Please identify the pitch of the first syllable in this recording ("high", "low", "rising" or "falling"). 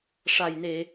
low